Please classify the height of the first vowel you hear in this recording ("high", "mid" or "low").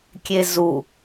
mid